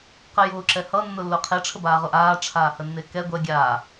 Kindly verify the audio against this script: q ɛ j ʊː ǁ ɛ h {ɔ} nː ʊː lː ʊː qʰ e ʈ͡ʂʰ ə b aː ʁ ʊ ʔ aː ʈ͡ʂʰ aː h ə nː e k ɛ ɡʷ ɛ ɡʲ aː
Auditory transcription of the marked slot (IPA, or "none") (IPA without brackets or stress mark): ʌ